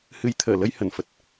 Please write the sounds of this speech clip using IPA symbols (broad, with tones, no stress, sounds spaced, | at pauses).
h ɨ˨˦ j t̪ʰ əː˧˩ l ə˧ j h ə˧˩ n f ə˨˩ t̚